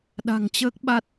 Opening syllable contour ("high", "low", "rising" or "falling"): low